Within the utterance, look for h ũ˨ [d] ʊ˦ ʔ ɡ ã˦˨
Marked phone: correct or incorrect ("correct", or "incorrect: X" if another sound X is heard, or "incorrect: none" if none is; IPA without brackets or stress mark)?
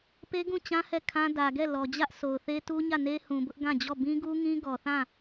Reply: incorrect: b